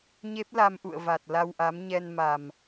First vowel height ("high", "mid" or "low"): mid